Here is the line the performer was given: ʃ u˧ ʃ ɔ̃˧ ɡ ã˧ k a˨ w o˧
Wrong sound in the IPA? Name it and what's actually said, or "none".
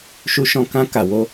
ɡ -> k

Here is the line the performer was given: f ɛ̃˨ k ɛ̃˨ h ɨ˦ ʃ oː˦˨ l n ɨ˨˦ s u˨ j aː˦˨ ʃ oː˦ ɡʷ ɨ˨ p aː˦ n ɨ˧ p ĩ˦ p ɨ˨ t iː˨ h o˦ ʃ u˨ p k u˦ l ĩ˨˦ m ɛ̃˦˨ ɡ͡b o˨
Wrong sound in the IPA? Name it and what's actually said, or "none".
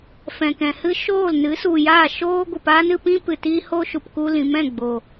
iː˨ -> iː˦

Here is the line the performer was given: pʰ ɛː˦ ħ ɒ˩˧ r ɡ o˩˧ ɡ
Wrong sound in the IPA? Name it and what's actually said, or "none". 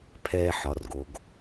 none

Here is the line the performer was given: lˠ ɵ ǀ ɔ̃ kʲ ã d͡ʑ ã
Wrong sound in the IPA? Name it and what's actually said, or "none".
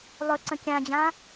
ɔ̃ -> ə̃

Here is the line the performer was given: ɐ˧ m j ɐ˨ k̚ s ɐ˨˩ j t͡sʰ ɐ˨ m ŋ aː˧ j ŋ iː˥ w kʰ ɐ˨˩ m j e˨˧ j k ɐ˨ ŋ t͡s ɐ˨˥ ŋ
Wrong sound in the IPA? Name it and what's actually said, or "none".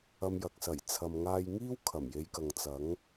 none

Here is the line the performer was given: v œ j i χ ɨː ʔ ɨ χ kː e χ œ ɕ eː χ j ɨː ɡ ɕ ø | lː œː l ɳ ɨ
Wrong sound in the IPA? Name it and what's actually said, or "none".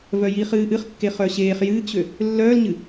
ɳ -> ɲ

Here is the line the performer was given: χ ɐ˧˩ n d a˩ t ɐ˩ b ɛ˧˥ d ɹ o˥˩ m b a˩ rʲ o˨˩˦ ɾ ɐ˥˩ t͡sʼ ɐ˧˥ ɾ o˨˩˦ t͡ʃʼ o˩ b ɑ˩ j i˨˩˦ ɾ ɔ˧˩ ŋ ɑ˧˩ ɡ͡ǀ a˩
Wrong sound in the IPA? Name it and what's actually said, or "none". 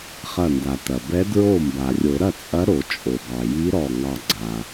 i˨˩˦ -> i˧˥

